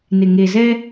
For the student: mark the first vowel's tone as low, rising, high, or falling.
low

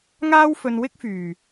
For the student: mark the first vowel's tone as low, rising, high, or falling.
high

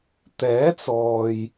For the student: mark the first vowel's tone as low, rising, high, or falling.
rising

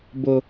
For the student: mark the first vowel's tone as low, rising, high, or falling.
high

